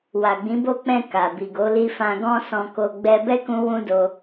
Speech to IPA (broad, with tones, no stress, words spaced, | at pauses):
wa˨ɡ͡bĩ˨˦bo˦˨ k͡pɛ̃˧ ka˨bi˨ɡo˨˦li˦ fã˧ɡɔ̃˦sɔ̃˧ko˧ ɡ͡bɛ˧bɛ˦kũ˧ wũ˦do˧